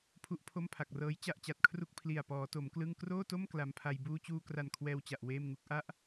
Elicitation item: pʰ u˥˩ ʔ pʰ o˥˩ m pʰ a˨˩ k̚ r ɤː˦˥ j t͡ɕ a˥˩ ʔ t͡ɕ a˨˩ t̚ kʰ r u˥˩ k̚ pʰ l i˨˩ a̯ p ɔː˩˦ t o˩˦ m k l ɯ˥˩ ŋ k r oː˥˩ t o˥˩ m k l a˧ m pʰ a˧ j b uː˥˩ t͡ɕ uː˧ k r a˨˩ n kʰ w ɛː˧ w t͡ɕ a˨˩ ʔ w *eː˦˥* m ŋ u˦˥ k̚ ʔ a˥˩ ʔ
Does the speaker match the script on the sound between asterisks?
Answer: no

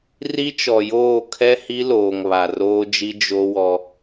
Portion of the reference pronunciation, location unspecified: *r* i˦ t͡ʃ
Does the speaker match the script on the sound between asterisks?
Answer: yes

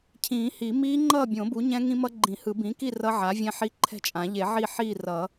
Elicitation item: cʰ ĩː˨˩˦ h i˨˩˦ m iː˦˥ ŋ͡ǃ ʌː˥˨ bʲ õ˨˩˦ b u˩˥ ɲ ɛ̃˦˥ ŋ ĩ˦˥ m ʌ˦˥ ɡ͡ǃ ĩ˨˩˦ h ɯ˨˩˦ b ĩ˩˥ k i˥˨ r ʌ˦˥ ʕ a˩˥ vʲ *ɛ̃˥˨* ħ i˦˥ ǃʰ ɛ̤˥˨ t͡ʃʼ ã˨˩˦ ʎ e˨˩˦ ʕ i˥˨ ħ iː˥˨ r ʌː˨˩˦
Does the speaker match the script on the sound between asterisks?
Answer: no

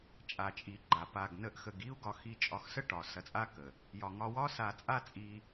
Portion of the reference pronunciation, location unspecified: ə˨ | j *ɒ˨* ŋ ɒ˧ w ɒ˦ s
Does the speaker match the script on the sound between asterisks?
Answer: yes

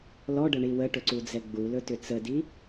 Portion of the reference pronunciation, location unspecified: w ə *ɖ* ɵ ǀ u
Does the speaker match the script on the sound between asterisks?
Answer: no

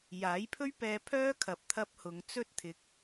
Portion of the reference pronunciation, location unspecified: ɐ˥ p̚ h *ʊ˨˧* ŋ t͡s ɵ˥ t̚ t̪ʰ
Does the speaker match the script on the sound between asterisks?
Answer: yes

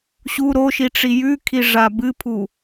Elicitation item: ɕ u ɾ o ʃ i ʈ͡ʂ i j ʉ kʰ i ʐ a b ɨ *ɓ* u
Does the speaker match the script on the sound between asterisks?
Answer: no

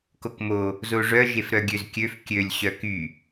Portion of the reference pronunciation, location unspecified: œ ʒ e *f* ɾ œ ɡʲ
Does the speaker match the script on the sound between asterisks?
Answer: yes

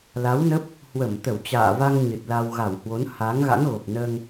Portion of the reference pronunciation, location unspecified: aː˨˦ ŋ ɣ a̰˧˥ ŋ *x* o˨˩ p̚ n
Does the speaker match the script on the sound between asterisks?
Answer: no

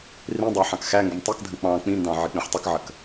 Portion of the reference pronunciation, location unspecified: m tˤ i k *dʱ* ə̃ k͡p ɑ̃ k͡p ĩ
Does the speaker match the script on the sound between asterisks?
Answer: yes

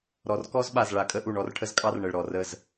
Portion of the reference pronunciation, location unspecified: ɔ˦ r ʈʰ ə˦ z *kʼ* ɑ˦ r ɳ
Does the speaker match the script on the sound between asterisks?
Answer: yes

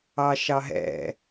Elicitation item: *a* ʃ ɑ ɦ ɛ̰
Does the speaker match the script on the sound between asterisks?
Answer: no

